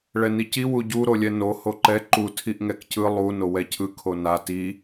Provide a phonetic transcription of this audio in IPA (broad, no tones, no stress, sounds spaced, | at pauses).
ɭ ɛ n i c i w u ɟ u ɾ o lʲ ɛ n o h o ǃ ɛ ǃ u tʰ i ʔ ŋ ɛ k c ɯ lˠ u n o w ɛ cʰ ɯ kʰ o n a t i